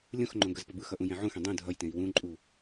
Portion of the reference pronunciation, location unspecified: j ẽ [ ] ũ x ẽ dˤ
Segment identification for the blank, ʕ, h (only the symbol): ʕ